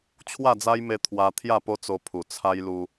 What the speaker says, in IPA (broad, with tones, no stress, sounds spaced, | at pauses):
t͡ɕʰ w a˥˧ d͡z a˦ j m e˧ t̪ʰ w a˧ t̪ʰ j a˥˧ p o˦ t͡s o˧ pʰ u˨˩ t͡sʰ a˦ j l u˧